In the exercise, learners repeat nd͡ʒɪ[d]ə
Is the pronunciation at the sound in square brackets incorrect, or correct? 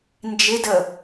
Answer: correct